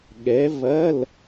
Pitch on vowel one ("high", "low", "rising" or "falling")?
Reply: rising